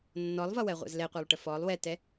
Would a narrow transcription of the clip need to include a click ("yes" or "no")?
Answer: no